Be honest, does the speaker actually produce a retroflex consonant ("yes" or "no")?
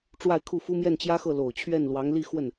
yes